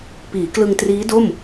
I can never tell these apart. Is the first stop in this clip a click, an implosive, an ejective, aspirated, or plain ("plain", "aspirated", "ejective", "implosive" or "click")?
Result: plain